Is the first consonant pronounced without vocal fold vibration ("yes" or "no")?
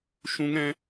yes